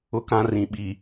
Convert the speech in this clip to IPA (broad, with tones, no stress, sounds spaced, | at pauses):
ʊ˨˦ k ã˨ r ĩ˨ ɓ i˨